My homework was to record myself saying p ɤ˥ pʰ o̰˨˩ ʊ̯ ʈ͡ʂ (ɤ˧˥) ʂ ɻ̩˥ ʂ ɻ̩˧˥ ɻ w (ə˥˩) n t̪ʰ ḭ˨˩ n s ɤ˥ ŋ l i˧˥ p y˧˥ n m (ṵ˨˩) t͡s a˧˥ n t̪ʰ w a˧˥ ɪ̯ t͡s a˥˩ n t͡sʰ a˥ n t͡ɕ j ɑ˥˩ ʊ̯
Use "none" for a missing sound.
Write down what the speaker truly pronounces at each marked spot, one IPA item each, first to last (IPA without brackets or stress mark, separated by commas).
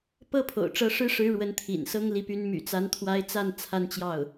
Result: ɤ˧˥, ə˧˥, y̰˨˩